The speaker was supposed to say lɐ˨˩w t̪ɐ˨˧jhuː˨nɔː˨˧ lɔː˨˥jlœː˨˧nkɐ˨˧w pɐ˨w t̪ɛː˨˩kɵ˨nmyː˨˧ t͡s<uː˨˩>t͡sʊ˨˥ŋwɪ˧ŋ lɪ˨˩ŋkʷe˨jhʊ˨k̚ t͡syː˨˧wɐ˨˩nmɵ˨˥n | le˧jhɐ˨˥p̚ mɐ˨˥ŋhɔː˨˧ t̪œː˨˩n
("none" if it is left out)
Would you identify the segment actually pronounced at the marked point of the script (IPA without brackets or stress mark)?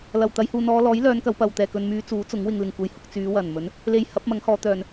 uː˨˥